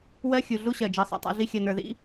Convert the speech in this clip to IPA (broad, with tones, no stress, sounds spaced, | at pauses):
w ɜ˦ xʲ u˨ ɮ u˦ ɕ ɜ˨ d͡ʒ ɜ˧ sˤ a̰˧ tˤ a̰˦ ɮ i˦ xʲ ɜ˨ n ə˞˨ ð ḭ˦